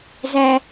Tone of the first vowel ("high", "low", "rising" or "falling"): high